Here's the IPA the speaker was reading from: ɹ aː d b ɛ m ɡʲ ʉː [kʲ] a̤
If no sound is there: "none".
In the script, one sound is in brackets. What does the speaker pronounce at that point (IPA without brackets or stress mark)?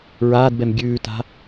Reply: t